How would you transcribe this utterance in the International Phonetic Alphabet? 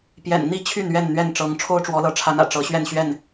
p j ɛ̰˨˩ n n̪ i˥˨ t͡ɕʰ y˥˨ n ɥ ɛ˥˨ n n̪ ɥ ɛ˥˨ n ʈ͡ʂ ɤ˨˦ ŋ ʈ͡ʂʰ o˦ ʊ̯ ʈ͡ʂ w ɔ˨˦ l ɤ˨˦ ʈ͡ʂʰ a˨˦ n ä̰˨˩ ʈ͡ʂ ɤ˨˦ ɕ ɥ ɛ˥˨ n ɕ ɥ ɛ˥˨ n

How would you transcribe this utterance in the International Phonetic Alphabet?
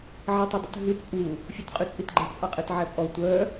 ʕ ɛ tˤ œ dˤ ṵ t ɦ y t pʼ u | fʲ u t qʼ y t͡sʼ i t ɡ͡ǃ æ t pʼ ɑ qʼ e t ʕ æ pʼ ɔ tʷ œ

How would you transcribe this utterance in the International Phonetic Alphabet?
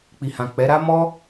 k͡p i˨ h ã˨ k͡p ɛ˨˦ ɾ a˦ m ɔ˦

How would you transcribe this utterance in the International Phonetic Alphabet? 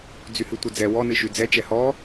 d͡z y h ɨ tʷ ɘ d͡z ɛ w ɔ n ɨ ʃ y d͡z ɛ t͡ʃ ɛ h ɔ

